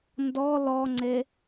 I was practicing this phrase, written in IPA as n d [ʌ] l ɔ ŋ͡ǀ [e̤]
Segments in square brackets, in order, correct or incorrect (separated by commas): incorrect, incorrect